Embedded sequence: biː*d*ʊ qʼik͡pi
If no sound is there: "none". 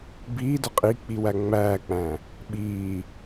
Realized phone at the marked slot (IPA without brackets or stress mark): d